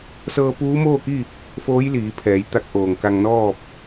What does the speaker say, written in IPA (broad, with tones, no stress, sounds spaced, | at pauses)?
s ɤː˧ p uː˧˥ m oː˥˨ k i˥˨ | f oː˧˥ j l iː˩˧ pʰ ɛː˩˧ j t̪ a˧ k̚ ʔ oː˩ ŋ k a˧ ŋ n ɔː˥˨ p̚